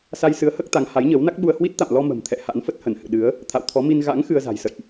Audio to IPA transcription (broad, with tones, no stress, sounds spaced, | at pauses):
s a˧ j s ɨ˨˦ ə̯ h əː˦˥ k̚ t̪ a˨˦ ŋ h a˨˦ j ɲ əː˨˦ w n a˦˥ k̚ ɓ u˧ ə̯ h w i˦˥ t̚ t̪ a̰˧˨ m l ɔ˧ m ə̤˨˩ m t̪ʰ ɛ̰˧˨ h a̰˧˥ n f ə˦˥ t̚ h ə˧˩ n h ɨ̰˧˨ ɗ ɨ˨˦ ə̯ | t̪ʰ a̰˧˨ w t̪ʰ ɔ˨˦ m i˧ n ɣ a̰˧˥ ŋ x ɨ˧ ə̯ z a̤˨˩ j s ə̰˧˨ j ʔ